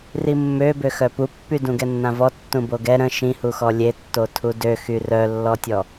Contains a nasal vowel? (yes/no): yes